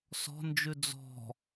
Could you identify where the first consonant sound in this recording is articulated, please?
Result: alveolar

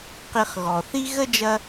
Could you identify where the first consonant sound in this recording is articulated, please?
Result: uvular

